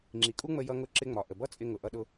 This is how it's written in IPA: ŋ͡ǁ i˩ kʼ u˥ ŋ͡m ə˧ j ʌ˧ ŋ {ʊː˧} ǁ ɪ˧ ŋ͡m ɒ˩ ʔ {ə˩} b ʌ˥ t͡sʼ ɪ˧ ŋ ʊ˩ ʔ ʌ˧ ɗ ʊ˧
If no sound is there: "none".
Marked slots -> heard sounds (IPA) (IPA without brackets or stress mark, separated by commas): ʊ˧, ə˩